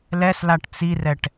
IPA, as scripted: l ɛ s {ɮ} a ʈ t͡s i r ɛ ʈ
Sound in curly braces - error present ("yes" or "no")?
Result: yes